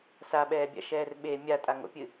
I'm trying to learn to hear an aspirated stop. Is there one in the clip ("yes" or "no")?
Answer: no